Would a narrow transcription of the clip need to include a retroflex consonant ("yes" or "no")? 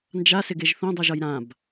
no